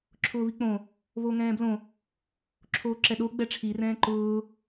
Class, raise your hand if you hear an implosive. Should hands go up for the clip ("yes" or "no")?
yes